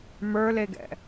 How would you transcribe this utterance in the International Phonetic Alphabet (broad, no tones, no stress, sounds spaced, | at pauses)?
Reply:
m ə˞ l e ɡ ɛ̰